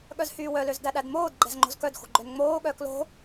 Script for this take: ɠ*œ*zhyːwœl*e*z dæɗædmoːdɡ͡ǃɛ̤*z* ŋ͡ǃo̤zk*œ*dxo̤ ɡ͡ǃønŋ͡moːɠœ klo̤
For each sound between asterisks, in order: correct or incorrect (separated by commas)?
correct, incorrect, correct, correct